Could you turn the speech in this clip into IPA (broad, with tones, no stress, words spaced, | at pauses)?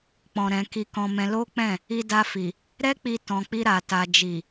k͡pɔ̃˨ ɾɛ̃˨ ki˧kɔ̃˧mɛ̃˧ lo˦k͡pɛ̃˦˨ | i˧da˧fi˨ | ɾɛ˦k͡pi˧tɔ̃˨ k͡pi˧ɾa˨ ta˨ d͡ʒi˨